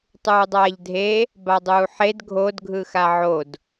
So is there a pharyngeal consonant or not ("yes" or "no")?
yes